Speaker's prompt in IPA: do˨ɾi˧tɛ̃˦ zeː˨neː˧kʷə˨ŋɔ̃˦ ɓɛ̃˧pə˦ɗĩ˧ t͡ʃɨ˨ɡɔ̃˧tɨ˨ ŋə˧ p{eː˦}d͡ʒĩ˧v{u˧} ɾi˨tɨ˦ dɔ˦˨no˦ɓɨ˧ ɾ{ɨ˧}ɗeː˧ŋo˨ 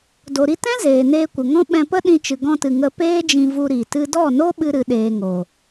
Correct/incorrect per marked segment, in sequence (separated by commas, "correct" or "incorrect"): correct, correct, correct